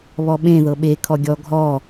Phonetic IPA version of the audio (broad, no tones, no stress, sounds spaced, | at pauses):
β ɔ ɓ ẽ ð ɤ ɓ e kʰ ɔ ɡʲ ɔ ɡʱ ɔ